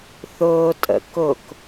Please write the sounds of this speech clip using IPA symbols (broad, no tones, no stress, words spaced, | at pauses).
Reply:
θʊːtʼə̰ kʊk